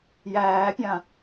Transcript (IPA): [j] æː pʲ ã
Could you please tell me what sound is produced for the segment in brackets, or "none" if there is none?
j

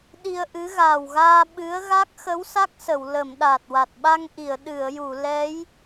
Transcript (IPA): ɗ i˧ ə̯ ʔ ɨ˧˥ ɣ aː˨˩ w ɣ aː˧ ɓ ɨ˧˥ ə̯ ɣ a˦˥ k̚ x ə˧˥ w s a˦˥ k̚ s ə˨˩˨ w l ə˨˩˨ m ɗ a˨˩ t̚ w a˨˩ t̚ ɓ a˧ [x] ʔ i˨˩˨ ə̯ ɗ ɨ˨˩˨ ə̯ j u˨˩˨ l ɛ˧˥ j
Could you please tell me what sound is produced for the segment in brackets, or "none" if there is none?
ŋ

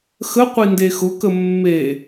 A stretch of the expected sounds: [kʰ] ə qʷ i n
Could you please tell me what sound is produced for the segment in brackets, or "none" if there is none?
x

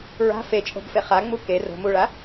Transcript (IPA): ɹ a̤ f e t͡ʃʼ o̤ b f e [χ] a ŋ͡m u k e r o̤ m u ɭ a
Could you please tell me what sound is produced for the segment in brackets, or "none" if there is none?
χ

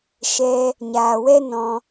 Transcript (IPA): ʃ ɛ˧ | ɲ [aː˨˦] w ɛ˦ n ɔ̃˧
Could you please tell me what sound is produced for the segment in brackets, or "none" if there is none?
aː˨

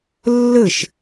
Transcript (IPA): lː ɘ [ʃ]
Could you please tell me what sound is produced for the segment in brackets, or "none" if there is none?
ʃ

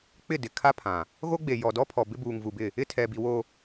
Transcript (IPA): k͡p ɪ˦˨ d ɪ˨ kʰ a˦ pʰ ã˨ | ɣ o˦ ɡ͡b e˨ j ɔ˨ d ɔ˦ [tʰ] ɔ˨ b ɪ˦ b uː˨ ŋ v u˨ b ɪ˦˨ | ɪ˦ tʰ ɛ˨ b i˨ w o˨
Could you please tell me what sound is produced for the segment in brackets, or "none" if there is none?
pʰ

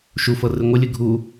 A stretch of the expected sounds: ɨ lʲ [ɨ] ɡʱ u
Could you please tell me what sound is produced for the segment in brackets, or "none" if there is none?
ɨ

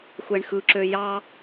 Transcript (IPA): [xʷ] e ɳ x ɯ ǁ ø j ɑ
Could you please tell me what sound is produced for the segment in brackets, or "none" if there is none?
xʷ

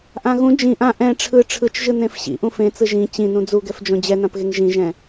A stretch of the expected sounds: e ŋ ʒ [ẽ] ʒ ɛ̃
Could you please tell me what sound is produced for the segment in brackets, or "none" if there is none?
ĩ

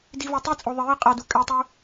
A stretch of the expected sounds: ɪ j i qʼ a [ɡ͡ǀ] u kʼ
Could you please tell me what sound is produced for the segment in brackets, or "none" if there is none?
d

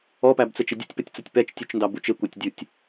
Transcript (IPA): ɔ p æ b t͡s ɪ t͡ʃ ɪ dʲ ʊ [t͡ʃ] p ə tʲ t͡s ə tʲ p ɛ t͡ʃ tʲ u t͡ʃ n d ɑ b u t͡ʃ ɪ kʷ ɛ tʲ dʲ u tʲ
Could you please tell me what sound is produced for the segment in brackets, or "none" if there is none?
tʲ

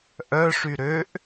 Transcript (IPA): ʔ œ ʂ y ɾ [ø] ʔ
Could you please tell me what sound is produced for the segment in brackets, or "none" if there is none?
ø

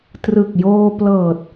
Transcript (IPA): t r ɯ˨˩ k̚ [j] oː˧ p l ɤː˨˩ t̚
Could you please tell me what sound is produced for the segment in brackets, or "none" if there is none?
j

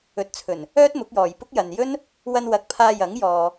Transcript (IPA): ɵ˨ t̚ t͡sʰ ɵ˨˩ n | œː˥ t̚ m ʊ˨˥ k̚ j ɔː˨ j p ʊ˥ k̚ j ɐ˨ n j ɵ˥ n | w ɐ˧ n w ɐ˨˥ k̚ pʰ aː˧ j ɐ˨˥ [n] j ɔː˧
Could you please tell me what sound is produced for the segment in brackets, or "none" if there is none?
ŋ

